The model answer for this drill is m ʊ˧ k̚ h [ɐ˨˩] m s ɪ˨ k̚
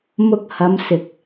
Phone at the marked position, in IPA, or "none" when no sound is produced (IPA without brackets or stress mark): ɐ˨˧